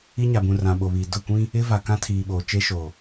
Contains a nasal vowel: yes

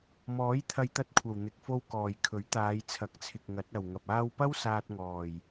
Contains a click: no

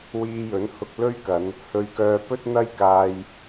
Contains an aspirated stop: no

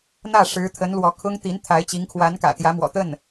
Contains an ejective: no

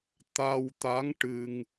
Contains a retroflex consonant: yes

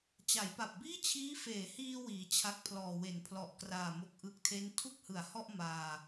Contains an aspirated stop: yes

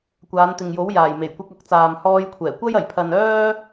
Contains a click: no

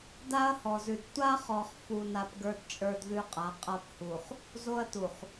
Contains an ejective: yes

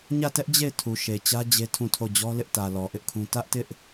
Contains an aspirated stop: yes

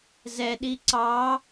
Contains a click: yes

